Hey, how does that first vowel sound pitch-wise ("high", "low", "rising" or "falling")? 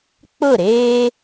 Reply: falling